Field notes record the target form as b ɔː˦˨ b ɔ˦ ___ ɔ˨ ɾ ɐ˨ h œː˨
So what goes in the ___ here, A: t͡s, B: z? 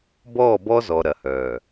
B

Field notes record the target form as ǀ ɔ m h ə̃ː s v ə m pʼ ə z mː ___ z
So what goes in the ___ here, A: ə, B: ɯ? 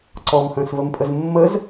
A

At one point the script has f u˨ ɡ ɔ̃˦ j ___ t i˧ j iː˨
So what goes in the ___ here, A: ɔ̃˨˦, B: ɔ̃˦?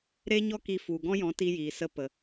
A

